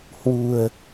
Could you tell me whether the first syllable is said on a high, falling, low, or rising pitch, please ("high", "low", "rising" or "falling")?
low